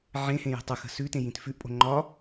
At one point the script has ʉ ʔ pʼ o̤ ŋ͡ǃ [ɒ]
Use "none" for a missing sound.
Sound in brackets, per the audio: ɒ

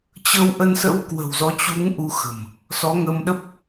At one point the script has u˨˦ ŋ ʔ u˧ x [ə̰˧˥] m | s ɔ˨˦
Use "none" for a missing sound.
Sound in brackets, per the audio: ə̤˨˩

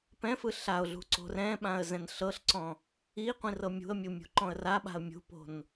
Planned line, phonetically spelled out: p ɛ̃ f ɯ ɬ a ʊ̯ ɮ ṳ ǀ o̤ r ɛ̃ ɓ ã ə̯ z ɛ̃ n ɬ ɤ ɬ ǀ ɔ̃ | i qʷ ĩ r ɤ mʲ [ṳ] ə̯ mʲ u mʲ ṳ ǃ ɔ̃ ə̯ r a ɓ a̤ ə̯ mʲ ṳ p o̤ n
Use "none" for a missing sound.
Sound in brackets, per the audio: ṳ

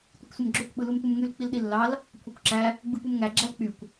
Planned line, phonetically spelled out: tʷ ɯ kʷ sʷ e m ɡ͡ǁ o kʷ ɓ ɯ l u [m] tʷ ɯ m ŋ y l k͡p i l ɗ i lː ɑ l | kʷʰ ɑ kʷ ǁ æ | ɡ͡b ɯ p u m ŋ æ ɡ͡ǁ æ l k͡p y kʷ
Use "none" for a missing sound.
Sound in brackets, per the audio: m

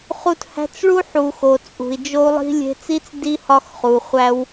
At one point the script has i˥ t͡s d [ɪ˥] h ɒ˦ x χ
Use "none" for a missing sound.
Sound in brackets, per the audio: i˥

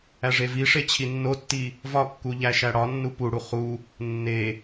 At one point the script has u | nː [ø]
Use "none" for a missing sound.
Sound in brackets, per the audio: e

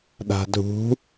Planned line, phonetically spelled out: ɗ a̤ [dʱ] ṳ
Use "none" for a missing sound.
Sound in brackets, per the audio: dʱ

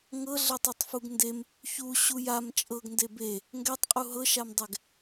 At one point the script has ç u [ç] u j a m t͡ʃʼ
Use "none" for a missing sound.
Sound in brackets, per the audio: ɕ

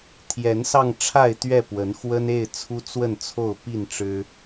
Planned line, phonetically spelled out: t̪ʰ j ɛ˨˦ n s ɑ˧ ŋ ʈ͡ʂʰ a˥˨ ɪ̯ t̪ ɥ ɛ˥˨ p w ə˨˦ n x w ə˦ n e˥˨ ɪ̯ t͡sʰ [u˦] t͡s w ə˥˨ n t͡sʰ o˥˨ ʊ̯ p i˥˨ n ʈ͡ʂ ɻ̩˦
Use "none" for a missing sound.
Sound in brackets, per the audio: u˦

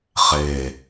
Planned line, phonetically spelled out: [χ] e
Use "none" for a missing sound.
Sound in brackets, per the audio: χ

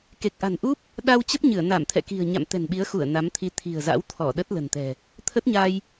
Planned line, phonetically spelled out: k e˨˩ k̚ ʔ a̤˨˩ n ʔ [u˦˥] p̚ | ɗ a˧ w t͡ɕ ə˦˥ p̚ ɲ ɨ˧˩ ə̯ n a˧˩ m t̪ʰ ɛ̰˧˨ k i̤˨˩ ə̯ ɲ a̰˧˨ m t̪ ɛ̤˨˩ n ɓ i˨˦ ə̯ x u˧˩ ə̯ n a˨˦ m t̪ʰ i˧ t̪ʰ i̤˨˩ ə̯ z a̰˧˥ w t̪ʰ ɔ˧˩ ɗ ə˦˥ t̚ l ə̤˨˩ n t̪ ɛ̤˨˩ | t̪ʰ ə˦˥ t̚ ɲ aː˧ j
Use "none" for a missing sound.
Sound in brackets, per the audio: u˦˥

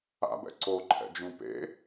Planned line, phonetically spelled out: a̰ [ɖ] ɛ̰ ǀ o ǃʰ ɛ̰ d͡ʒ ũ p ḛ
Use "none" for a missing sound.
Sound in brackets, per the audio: b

